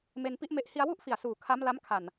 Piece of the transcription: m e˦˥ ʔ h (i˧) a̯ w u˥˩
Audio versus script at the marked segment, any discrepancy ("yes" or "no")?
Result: no